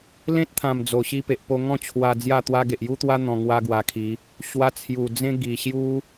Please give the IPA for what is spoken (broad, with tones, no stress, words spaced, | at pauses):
lẽ˦t̚t̪ʰã˨˩m d͡zo˨˩ ɕi˧pe˨ʔpo˧ ŋɔ̃˥˧t͡ɕʰwa˧ d͡zja˥˧t̪wa˦ ɡe˨ʔju˦t̪wa˦ n̪ɔ̃˧ŋwa˦ɡwa˧kʰi˨˦ | ɕwa˧t͡sʰju˨˩ d͡zẽ˦ ɡi˨˩ɕju˦